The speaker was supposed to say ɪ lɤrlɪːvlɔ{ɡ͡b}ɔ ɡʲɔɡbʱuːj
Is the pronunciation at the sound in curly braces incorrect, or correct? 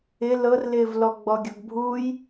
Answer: correct